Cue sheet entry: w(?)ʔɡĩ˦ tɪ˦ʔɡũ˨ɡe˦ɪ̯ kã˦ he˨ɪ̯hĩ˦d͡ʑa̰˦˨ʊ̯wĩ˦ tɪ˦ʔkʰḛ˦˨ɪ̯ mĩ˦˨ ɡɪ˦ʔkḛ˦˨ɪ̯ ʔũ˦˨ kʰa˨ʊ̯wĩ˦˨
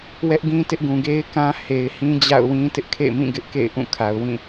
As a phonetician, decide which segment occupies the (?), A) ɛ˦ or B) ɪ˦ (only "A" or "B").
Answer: A